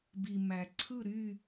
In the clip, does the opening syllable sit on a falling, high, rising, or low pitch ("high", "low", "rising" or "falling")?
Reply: low